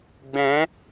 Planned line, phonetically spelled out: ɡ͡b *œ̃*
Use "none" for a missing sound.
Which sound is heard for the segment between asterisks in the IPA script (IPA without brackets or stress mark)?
ɛ̃